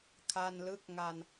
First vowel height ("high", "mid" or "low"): low